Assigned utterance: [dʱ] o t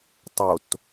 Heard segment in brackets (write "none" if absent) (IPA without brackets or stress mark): tˤ